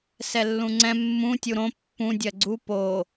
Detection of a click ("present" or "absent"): present